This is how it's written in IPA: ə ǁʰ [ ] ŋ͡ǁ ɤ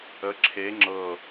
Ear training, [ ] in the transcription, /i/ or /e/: e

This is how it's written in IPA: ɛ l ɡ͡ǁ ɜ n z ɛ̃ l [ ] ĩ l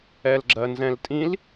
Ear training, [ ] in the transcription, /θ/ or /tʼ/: tʼ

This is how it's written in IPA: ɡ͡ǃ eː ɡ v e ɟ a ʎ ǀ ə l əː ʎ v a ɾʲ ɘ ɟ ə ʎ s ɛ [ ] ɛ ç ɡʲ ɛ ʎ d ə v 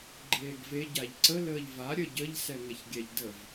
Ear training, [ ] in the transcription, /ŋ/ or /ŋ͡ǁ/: ŋ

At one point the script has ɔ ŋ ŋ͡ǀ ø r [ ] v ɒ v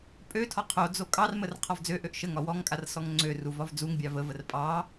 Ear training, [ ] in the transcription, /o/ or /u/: u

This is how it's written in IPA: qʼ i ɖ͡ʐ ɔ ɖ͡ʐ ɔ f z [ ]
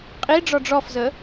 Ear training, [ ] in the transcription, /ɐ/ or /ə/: ə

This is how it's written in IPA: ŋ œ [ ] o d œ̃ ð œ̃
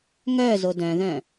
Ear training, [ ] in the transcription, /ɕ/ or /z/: z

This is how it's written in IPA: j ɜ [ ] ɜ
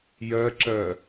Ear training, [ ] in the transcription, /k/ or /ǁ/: ǁ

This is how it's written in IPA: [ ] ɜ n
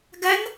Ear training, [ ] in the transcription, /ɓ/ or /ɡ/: ɡ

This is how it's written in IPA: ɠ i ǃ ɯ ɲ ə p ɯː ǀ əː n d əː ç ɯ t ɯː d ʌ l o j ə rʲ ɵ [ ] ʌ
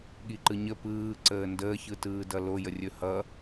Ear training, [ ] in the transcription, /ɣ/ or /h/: h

